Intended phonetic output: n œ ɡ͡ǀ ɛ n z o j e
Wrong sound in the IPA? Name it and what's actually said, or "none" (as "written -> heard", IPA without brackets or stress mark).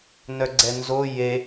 none